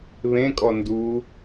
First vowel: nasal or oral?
nasal